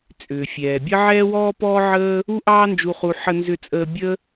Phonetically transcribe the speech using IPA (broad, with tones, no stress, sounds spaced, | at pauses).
t͡sʼ ʏː˩ fʲ ɛː˩ bʲ ə˥ ʕ ɛː˥ w ɔː˥ p ɔː˥ ʕ əː˥ | u˥ ʔ ɑː˥ n d͡ʒ u˧ χ u˧ ħ ə˧ n z ʏ˧ t͡sʼ əː˧ bʲ ə˥